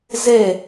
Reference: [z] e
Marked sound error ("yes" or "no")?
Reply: no